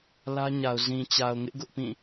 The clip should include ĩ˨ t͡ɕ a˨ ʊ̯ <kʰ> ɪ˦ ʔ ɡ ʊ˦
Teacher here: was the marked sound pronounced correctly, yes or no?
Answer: no